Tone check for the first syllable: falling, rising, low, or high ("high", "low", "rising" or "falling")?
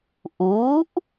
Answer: rising